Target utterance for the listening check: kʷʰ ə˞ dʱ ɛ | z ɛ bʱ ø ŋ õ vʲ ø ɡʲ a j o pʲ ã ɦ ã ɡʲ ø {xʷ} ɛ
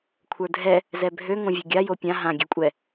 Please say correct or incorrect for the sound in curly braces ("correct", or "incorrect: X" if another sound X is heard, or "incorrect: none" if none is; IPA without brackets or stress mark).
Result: incorrect: kʷʼ